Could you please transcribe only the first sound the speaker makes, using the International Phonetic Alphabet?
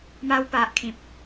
m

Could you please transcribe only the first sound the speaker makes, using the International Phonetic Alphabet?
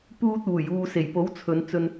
p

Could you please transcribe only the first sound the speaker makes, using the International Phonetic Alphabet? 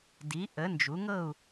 d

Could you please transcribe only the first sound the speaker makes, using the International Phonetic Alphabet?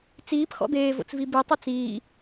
t͡s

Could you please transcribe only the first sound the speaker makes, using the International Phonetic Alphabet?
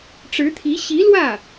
ʈ͡ʂ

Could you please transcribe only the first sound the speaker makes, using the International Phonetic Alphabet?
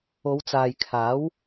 o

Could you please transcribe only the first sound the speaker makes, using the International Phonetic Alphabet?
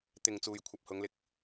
t̪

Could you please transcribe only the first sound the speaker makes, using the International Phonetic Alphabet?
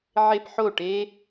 ʕ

